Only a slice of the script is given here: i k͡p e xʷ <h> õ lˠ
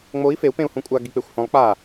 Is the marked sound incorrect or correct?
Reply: correct